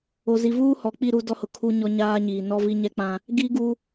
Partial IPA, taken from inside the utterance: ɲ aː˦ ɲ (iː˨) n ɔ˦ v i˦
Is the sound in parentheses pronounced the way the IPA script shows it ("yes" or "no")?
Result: yes